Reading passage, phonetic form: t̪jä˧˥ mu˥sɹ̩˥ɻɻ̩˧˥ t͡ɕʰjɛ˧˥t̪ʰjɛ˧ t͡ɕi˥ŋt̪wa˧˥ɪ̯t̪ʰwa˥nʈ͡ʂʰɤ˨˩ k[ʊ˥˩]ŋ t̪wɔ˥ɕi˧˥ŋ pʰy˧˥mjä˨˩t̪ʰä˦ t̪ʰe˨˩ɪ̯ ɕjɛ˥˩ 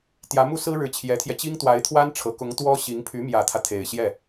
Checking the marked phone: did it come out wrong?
yes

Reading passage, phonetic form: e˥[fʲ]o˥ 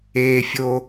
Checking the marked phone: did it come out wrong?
no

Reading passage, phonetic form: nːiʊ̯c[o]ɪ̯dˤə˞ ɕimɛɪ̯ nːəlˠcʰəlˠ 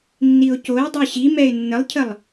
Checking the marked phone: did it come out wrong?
no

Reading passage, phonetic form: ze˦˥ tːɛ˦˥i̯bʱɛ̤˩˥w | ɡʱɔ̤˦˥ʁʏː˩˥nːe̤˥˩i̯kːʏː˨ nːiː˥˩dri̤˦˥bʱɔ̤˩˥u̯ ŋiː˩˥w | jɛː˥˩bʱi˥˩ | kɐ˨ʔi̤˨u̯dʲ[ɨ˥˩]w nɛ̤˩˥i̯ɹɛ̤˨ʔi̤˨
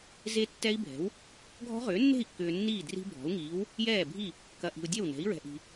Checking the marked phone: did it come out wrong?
yes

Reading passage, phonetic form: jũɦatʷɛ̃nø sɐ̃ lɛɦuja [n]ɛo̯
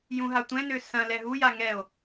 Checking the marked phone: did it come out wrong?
yes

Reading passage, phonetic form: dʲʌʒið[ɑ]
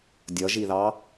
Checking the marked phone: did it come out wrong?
no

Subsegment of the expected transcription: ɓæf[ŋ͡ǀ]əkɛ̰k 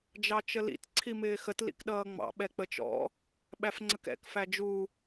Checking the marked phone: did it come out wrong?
no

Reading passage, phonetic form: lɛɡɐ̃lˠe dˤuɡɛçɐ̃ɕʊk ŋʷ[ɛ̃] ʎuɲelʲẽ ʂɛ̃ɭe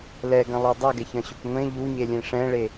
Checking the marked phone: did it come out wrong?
yes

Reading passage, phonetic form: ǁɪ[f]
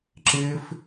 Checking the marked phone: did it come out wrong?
no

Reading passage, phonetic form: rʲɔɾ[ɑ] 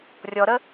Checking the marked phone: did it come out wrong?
yes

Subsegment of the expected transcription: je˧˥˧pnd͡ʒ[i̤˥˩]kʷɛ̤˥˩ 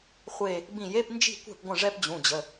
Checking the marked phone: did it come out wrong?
no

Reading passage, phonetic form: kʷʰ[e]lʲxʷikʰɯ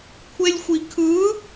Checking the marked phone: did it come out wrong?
no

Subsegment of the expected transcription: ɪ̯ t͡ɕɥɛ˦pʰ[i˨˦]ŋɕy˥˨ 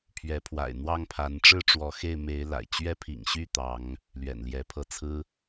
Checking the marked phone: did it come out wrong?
yes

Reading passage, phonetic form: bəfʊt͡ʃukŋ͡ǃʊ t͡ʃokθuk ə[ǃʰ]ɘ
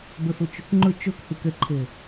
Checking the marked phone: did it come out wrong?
no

